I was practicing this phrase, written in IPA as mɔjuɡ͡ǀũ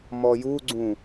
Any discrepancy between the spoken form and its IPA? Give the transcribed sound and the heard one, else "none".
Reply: none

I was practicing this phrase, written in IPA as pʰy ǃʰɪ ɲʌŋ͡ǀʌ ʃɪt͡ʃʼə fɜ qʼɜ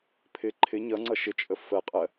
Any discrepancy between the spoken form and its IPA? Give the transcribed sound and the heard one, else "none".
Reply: y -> ɪ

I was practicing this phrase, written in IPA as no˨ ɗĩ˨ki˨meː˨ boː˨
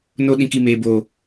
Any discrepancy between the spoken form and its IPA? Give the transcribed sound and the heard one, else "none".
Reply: none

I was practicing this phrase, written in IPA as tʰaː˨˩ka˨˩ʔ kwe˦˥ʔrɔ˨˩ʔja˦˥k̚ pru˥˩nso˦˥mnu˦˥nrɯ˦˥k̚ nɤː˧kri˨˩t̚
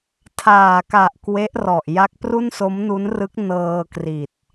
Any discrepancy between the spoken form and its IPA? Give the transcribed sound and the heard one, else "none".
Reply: none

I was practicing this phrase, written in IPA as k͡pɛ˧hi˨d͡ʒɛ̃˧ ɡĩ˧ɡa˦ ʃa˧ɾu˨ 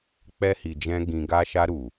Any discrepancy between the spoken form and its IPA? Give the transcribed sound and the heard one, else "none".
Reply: none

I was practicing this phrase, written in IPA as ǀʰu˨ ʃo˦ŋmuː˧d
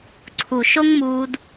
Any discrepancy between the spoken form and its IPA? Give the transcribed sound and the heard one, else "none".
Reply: none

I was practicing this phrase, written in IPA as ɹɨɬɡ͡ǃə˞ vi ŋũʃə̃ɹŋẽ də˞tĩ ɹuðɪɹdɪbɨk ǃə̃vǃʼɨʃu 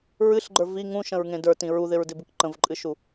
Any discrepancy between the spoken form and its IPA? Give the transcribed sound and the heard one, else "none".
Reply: none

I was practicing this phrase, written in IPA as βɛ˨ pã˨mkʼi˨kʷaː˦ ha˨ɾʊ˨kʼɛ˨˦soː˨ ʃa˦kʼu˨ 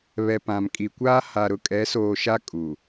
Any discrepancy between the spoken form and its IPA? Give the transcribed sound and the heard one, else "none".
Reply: none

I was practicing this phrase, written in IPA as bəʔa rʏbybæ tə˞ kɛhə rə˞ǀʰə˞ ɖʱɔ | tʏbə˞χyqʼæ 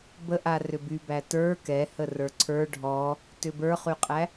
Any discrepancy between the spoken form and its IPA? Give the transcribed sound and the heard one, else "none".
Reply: none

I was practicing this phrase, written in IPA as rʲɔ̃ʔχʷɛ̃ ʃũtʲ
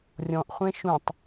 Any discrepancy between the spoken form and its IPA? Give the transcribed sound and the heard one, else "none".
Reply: tʲ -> tˤ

